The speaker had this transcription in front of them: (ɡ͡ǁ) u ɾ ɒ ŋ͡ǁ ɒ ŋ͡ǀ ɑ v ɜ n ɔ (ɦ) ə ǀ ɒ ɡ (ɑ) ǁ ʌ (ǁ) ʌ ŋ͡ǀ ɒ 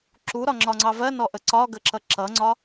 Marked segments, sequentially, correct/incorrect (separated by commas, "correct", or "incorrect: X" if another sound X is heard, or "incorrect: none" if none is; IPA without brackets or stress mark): incorrect: ǁ, incorrect: ʔ, incorrect: ə, correct